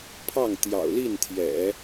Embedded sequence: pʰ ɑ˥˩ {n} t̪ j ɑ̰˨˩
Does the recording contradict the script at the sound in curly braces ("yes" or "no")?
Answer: yes